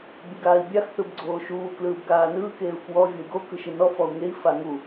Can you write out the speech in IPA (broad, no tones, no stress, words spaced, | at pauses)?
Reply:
bʲɯɡaːi̯bʲax θɯbɡ͡ǀoːʃuː klɯːbɡaːnɯː keːu̯kwɔ vʲoi̯ɡo kɯʃɯnɔ fɔu̯ŋei̯ faŋu